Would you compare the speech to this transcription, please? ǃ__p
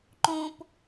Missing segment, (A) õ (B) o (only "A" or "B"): A